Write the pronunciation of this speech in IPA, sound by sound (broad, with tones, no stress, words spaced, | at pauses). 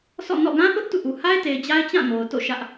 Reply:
sʰɔ̰˦˨ nɔ̰˦˨ ɡã˦θʊ˦ʔ tṵ˦˨ʔu˨ ha˦ɪ̯te˨ɪ̯ d͡ʑa˦ɪ̯t͡ɕã˦˨ ŋo˨ʊ̯to̰˦˨ ʃä˦ʔ